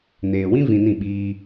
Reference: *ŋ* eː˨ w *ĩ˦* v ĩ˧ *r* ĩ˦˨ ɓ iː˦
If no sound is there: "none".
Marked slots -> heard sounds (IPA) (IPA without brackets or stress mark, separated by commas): n, ĩ˦, n